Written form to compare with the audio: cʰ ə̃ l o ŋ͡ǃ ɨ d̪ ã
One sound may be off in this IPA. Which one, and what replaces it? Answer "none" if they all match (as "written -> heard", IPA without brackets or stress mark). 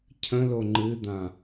none